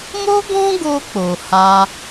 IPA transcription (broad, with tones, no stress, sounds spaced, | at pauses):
m o˦ ɡ ɔ̃˦ ɡ o˧ k͡p o˨ h a˧